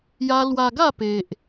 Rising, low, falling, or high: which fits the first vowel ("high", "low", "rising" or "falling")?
high